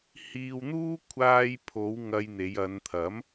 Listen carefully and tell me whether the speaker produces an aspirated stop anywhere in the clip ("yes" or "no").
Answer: yes